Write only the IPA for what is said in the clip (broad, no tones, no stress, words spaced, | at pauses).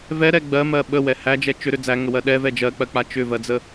vɛɾɛ ɡ͡bɜmɜ ɓəwɛ hæd͡ʒɛ t͡ʃʏɾʏ d͡zæŋəwɜ ɗɛvɛ d͡ʒɜk͡pɜk͡pa t͡ʃʏvɜd͡zə